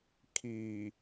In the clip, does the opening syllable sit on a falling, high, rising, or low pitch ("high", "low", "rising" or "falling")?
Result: low